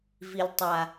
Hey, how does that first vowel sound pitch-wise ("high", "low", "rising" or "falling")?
low